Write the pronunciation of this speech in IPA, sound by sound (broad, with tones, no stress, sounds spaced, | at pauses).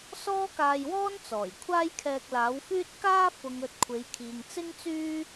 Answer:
s ɔː˥ k aː˧ j w ɔː˥ n t͡s ɔː˨˩ j kʷʰ aː˥ j kʰ ɛː˧ k̚ l aː˨˥ w f yː˥ t̚ k aː˥ f ʊ˨ ŋ ɵ˨ t̚ kʷʰ e˨˧ j kʰ iː˨ ŋ t͡s ɪ˥ ŋ t͡s yː˥